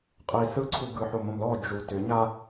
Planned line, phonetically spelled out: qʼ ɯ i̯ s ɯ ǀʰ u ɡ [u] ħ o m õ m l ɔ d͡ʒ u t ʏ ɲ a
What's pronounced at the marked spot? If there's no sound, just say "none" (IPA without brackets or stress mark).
ɯ